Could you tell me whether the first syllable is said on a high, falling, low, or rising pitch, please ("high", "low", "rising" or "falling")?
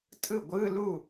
falling